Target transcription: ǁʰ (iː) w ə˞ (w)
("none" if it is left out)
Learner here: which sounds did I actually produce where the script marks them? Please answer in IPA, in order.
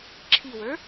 i, none

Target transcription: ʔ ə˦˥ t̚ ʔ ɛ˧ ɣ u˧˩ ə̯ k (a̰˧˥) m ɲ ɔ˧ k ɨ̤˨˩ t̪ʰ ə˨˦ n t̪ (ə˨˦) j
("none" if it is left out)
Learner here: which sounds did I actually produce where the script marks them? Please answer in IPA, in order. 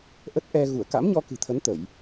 a̰˧˥, ə˧˩˨

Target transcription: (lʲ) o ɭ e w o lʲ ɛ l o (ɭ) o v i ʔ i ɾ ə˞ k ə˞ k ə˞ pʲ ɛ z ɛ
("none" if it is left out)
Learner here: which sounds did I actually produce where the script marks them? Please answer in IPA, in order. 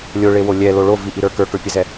lʲ, ɭ

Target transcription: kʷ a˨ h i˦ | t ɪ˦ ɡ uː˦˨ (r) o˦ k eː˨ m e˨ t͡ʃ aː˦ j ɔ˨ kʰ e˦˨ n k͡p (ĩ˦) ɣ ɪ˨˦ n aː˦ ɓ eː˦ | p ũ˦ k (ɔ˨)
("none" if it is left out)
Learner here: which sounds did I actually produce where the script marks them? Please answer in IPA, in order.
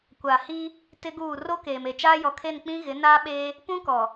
r, ĩ˦, ɔ˨

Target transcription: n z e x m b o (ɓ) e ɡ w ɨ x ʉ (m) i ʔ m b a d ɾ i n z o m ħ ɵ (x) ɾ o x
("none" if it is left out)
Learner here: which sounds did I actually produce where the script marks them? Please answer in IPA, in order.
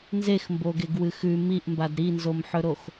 ɡ, m, none

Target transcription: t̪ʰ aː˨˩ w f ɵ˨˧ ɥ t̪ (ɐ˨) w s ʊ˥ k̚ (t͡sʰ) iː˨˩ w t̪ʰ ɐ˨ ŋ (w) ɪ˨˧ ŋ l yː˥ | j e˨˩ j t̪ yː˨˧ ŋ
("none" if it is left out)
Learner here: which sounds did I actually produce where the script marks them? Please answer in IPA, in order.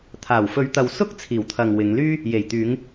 ɐ˨, t͡sʰ, w

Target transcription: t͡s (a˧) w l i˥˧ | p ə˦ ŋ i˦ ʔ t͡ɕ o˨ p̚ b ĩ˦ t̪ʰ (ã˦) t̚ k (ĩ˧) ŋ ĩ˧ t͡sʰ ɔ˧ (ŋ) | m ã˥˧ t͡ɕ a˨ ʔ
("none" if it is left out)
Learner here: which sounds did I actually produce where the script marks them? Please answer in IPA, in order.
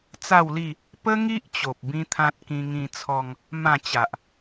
a˥˧, ã˦, ĩ˧, ŋ

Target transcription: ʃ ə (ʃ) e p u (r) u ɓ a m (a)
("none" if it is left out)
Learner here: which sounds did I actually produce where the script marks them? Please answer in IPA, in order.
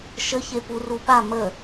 ç, r, ə

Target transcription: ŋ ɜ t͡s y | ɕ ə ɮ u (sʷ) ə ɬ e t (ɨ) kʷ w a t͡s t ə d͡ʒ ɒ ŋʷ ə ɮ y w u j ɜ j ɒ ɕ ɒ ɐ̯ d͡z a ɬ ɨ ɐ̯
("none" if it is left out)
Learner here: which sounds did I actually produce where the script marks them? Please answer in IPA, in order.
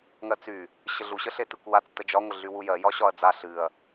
ɕ, ɨ

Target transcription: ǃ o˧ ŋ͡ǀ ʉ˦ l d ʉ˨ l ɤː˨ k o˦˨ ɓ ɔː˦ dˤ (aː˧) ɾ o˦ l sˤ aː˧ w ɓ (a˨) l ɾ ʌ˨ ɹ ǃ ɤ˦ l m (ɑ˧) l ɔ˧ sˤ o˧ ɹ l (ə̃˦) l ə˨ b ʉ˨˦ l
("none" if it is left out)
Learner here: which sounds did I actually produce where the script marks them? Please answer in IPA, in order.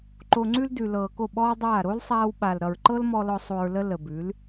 aː˦˨, a˨, ɔ˧, ə˦

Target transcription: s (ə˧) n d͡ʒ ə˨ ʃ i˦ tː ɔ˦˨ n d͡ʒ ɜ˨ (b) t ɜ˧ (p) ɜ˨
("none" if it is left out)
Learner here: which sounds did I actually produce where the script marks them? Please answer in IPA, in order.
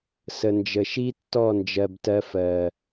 ə˨, b, f

